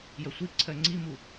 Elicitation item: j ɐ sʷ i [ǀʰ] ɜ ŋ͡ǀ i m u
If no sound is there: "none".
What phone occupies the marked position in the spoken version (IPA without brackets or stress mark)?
ǀʰ